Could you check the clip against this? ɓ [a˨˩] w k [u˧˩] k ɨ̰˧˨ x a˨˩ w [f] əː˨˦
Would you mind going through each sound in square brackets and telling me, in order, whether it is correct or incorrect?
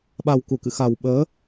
correct, correct, incorrect: ɓ

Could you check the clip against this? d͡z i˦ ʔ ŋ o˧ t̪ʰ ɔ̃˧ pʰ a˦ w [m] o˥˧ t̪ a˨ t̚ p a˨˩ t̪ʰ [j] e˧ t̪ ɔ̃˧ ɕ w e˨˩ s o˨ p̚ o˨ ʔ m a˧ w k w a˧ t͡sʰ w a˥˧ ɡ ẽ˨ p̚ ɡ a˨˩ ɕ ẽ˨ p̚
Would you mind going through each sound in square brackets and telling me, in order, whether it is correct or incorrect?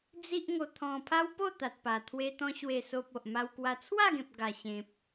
incorrect: p, incorrect: w

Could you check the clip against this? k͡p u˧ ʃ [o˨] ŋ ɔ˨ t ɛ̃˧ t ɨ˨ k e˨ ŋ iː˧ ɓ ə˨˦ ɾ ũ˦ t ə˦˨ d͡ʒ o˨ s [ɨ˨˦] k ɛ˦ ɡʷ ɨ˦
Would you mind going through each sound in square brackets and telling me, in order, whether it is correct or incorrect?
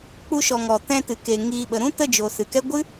incorrect: ɔ˨, incorrect: ɨ˨

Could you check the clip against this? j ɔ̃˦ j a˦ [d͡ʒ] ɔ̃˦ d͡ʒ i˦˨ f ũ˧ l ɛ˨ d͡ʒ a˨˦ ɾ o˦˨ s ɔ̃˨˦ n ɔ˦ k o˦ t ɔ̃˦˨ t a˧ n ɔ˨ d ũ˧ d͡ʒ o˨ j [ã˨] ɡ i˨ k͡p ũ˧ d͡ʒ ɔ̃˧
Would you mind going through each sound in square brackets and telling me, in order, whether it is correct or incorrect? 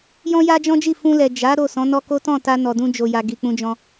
correct, incorrect: a˨

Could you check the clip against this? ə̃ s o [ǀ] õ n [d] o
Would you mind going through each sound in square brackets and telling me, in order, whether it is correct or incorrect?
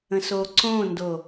correct, correct

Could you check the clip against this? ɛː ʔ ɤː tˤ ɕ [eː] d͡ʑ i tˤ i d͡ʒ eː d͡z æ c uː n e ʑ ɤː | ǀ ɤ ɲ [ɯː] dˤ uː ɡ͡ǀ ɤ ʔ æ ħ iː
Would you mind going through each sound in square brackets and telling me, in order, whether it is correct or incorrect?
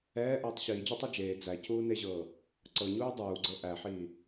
incorrect: iː, incorrect: uː

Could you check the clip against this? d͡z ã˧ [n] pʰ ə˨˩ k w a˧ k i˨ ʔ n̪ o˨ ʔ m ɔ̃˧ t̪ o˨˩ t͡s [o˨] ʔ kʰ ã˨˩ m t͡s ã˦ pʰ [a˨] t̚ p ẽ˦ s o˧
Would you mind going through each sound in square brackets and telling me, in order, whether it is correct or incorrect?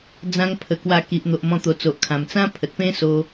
incorrect: ŋ, correct, incorrect: ə˨

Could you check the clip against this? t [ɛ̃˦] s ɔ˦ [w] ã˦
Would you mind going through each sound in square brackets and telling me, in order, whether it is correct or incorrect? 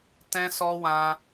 correct, correct

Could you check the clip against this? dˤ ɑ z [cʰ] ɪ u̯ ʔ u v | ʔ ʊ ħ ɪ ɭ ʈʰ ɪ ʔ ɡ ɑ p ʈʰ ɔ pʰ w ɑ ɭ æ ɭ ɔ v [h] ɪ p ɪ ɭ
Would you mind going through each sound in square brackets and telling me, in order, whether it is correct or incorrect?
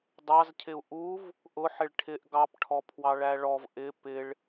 correct, incorrect: ʔ

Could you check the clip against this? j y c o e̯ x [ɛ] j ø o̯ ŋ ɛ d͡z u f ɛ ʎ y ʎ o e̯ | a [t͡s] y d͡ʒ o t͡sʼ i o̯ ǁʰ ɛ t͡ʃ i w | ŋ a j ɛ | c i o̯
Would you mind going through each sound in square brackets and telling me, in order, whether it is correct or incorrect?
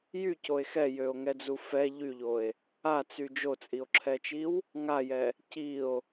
correct, correct

